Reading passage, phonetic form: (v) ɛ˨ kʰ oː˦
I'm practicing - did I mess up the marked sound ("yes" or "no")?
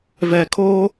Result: no